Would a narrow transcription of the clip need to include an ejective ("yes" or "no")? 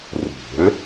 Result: no